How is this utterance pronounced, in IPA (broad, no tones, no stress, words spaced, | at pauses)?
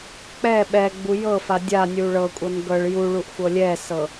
k͡pɛ ɓɛ ɡ͡bujɤfa dʲanʲu ɭɤkʷʼɤn ɡɤɭ juɭuʔ xʷɤlʲɛsɤ